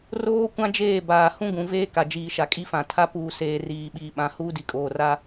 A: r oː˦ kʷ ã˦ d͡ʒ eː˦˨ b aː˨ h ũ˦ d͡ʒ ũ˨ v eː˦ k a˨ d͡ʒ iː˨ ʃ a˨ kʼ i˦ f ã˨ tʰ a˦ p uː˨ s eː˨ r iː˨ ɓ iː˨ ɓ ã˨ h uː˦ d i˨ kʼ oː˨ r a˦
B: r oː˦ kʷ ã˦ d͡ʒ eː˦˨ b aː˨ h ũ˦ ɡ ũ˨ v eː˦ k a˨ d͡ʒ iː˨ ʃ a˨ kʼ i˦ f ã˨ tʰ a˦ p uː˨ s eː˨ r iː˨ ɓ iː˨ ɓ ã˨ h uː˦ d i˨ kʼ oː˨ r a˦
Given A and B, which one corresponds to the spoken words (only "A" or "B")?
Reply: B